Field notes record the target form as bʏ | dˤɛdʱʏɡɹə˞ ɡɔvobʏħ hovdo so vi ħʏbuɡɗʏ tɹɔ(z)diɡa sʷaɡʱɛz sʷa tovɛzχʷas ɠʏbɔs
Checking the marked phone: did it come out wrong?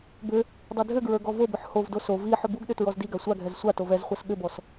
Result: no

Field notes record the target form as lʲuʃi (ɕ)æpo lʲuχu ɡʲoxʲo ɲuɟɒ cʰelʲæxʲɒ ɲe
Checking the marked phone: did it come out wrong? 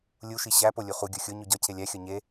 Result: no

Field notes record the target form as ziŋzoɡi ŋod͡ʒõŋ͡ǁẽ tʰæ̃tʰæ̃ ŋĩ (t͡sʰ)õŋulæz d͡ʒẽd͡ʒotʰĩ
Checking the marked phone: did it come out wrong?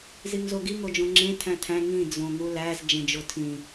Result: yes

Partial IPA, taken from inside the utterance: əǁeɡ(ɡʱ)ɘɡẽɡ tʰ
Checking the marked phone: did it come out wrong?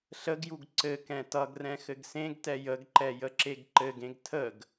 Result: yes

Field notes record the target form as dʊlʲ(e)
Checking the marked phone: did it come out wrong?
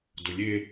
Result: no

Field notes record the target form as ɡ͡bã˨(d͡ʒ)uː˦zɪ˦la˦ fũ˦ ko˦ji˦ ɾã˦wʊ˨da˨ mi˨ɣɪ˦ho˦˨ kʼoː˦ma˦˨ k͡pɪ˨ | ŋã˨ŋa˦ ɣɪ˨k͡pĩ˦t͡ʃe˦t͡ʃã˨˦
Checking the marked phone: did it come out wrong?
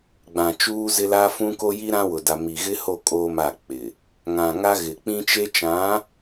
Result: yes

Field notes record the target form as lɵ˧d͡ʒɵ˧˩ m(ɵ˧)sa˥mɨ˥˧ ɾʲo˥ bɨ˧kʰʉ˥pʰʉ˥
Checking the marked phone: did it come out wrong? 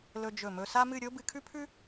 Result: no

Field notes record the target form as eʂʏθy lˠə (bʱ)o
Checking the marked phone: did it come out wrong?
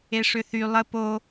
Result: yes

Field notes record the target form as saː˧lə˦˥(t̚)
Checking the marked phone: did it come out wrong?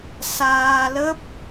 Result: yes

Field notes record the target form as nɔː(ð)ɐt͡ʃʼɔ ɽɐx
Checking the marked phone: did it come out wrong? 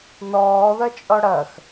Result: no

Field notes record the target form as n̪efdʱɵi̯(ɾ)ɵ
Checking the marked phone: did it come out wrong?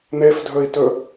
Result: yes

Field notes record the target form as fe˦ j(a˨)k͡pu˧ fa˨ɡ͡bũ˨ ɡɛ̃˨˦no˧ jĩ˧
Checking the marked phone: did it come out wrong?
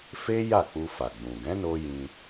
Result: yes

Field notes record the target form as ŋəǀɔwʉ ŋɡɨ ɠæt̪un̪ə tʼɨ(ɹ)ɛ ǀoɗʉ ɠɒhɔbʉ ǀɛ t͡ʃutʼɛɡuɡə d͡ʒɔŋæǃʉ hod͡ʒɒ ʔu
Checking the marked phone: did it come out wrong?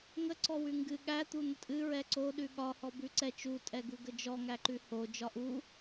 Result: no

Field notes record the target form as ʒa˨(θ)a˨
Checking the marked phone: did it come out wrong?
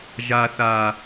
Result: no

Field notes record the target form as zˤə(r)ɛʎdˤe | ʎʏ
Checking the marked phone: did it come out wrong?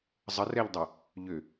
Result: no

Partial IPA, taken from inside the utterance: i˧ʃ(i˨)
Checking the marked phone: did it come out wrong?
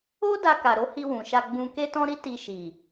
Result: no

